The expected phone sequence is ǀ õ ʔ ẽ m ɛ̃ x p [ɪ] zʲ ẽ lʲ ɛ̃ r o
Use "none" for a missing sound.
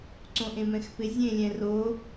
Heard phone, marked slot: ɪ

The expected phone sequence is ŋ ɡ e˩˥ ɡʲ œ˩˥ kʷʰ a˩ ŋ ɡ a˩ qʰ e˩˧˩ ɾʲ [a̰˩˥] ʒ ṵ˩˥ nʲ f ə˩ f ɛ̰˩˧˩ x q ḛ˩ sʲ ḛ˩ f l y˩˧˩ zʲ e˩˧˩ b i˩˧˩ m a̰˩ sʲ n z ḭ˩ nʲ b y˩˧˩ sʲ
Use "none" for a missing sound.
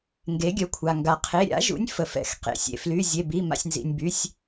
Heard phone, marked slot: a̰˩˥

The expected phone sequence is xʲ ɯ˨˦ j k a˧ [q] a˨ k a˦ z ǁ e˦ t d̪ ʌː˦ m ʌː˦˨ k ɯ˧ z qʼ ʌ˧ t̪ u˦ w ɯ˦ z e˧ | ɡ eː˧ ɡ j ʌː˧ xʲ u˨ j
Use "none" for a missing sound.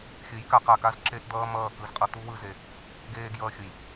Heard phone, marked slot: q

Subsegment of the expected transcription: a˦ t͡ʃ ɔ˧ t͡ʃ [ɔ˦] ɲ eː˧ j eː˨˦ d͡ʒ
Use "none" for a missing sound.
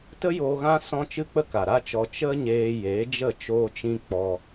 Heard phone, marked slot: ə˦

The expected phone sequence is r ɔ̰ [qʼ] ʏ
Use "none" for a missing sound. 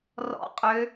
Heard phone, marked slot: qʼ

